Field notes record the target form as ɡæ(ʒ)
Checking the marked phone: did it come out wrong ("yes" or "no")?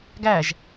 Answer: no